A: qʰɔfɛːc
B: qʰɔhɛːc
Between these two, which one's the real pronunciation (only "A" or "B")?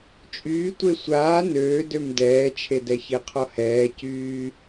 B